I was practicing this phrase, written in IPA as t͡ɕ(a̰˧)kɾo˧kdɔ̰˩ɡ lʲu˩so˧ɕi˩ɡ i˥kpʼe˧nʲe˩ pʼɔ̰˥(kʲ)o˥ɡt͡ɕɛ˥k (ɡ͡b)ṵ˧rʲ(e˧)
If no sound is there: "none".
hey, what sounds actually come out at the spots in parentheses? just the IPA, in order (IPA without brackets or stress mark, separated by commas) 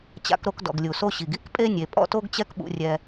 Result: a̰˧, t, ɓ, ɛ˧